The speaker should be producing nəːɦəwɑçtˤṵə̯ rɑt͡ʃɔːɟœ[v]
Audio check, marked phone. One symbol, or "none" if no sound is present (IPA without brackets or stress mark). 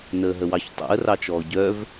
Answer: v